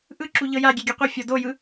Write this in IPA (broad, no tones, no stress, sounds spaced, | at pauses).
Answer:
ʔ ɯ ǁ u ʎ ɤ j a ɡʲ ɛ ɡʲ ɯ qʷ e fʲ ɔ d o j ɯ